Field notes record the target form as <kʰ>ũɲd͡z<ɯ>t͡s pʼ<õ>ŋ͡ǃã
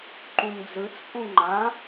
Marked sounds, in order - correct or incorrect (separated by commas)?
incorrect, correct, incorrect